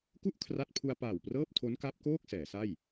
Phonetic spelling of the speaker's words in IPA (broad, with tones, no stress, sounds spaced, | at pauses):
k u˥˩ ʔ kʰ r a˥˩ t̚ pʰ u˧ a̯ p aː˨˩ w p r ɤː˥˩ p̚ tʰ o˦˥ n k a˦˥ p̚ k oː˥˩ k̚ s ɛː˩˦ s a˥˩ j